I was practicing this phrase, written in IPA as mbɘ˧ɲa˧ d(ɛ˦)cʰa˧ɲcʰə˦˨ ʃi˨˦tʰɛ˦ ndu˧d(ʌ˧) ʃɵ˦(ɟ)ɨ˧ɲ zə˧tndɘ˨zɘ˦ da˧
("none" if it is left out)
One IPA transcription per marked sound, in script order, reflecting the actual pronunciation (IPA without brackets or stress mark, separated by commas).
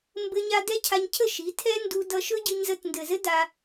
ɛ˦, ʌ˧, ɟ